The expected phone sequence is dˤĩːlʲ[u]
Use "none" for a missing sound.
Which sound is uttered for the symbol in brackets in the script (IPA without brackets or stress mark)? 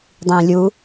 u